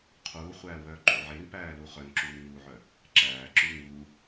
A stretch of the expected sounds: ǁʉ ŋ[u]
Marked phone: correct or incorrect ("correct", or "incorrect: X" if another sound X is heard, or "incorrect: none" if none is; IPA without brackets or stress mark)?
correct